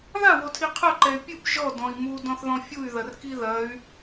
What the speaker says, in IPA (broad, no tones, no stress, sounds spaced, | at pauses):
ð a w o tʰ i qʰ ɐ ǃ ɛ y̯ pʲ ɨ p ʒ ɔ d ɔ̃ i̯ m u d ɔ̃ θ ð ɔ̃ fʲ u y̯ ð ɐ r k i ð ɐ y̯